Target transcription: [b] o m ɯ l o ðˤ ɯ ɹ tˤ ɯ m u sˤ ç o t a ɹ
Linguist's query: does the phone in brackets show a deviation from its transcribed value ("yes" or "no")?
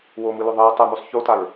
yes